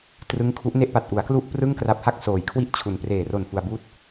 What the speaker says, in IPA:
trɯ˦˥ŋkʰu˦˥ʔne˥˩ʔ pa˨˩t̚ʔu˩˦a̯ klu˥˩ʔprɯ˥˩ŋkra˦˥p̚ha˥˩k̚ soː˨˩jkʰwi˥˩ʔt͡ɕʰu˨˩n preː˨˩ro˨˩n fu˧a̯buː˥˩t̚

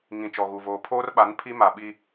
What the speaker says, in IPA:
ŋĩ˨ t͡ʃɔ˨ɣu˨voː˨ pʰoː˦rɓa˨˦n pʰi˦ma˨ ɓi˦

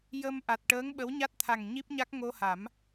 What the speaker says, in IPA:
jə˧mʔa˨˩t̚ ʈəː˧˥ŋ ɓə˧˥wɲa˦˥t̚t̪ʰa˨˩ŋ ɲi˦˥p̚ɲa˦˥k̚ ŋo˧ha˨˩˦m

